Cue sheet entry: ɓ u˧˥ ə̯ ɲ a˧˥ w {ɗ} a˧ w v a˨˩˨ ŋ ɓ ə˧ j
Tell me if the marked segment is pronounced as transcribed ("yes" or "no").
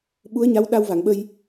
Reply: yes